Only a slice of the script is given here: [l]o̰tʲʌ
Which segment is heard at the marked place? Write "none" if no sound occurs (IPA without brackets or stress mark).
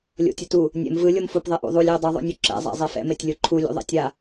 lʲ